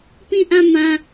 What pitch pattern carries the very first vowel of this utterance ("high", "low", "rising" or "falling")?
falling